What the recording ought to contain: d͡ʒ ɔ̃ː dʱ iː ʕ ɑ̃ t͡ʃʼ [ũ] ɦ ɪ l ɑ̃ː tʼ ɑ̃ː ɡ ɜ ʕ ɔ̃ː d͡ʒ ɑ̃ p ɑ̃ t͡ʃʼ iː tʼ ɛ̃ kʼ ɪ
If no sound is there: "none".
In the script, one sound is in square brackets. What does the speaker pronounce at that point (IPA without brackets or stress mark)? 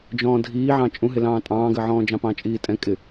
ũ